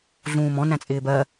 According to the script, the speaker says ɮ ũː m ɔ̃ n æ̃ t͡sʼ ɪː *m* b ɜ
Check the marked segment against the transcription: incorrect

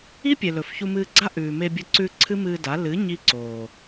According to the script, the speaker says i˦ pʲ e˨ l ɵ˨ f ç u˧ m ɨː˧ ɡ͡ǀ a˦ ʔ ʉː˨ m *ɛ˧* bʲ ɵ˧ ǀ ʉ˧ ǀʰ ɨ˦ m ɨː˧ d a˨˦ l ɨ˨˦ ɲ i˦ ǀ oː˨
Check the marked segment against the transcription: incorrect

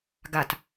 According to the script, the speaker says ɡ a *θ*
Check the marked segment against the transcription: incorrect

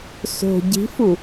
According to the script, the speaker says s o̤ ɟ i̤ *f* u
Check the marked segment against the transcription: correct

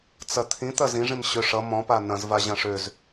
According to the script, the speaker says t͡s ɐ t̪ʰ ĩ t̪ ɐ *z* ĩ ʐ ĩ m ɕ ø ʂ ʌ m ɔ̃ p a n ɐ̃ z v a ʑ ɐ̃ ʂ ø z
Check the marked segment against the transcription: correct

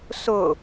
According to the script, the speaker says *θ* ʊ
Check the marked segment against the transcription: incorrect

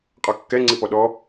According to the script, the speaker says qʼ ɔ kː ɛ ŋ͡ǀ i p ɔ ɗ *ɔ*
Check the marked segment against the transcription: correct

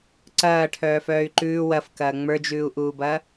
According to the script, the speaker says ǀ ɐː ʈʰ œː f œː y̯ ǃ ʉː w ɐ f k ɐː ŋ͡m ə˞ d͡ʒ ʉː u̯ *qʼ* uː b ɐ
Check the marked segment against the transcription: incorrect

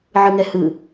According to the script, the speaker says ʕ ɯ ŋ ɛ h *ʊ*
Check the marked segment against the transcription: incorrect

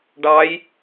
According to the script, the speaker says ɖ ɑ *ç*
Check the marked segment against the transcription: incorrect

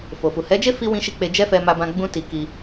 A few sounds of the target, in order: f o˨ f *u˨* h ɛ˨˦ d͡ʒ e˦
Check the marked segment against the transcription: correct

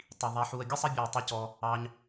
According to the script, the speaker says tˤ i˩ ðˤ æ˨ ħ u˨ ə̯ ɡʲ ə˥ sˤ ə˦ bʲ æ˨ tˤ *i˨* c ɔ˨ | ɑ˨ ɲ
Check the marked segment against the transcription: correct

